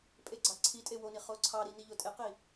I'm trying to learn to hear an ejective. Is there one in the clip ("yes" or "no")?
yes